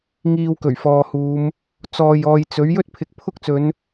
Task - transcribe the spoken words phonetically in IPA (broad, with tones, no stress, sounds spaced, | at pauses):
ŋ iː˧ w k ɵ˨˩ ɥ f ɔː˨ h uː˨˧ m | t͡s ɔː˨ j ɔː˨ j t͡s ɵ˨˥ ɥ j ɵ˥ t̚ pʰ ɪ˨˥ k̚ pʰ ʊ˥ k̚ t͡s ɵ˨˧ n